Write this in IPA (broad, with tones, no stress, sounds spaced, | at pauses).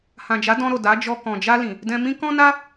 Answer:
h ã˨ d͡ʒ a˨˦ d ɔ̃˧ ɾ o˨ d a˨˦ d͡ʒ ɔ˧ k ɔ̃˨ d͡ʒ a˧ l ĩ˨ | d ɛ̃˧ m ĩ˦ k ɔ̃˦ n a˦